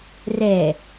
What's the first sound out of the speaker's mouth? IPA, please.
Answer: r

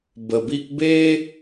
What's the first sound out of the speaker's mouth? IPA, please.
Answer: b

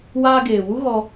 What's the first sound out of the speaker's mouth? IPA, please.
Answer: w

